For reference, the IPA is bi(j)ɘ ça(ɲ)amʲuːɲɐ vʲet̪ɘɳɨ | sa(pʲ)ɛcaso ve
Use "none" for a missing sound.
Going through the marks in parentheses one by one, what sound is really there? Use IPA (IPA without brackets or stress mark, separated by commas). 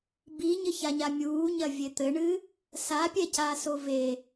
ɲ, ɲ, pʲ